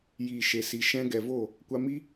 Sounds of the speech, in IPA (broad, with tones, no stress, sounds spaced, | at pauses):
j iː˨ ʃ e˨ s i˨ ʃ ɛ̃˧ ɡ ɛ˨ v o˦˨ | kʷ a˧ m i˦